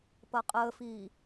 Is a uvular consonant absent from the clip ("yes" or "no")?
no